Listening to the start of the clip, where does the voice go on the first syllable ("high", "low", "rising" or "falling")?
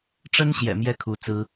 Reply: high